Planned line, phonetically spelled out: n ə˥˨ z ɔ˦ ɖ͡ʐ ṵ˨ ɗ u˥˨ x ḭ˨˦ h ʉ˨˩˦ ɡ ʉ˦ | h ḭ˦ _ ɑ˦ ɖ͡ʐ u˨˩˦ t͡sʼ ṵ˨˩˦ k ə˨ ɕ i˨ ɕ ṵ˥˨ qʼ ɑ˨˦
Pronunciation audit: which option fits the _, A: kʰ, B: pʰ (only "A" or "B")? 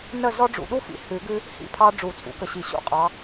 B